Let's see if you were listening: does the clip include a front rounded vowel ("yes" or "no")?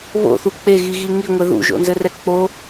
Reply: no